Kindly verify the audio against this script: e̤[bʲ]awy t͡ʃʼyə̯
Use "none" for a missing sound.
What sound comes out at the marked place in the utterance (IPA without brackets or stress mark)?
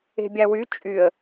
bʲ